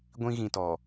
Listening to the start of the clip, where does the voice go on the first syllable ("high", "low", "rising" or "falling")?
high